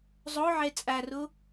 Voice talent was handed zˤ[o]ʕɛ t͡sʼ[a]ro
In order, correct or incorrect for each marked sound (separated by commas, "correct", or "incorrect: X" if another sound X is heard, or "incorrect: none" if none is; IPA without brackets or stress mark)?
correct, correct